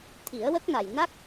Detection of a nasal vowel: absent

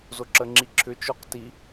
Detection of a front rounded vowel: present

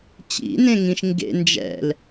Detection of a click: absent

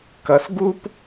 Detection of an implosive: absent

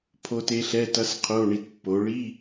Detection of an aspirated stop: present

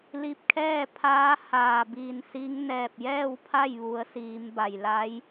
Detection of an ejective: absent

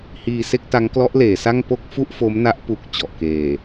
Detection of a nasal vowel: absent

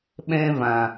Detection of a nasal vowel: present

